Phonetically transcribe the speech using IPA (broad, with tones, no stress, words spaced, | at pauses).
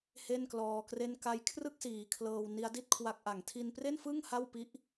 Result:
he˥˩nklɔː˧kre˥˩n ka˧jkʰrɯ˥˩k̚siː˨˩ kʰlɤː˧w ni˦˥a̯di˥˩t̚kʰwa˦˥k̚ ʔa˨˩ŋ tʰi˧npre˥˩nfɯ˥˩ŋ ha˥˩wpi˦˥ʔ